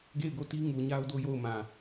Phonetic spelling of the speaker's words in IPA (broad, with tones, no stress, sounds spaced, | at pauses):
ɡ e˦˨ ɪ̯ ɡ o˦˨ t i˦ ŋ u˨ ɲ a˦ ʊ̯ d o˦ j o˦˨ ʊ̯ m ã˨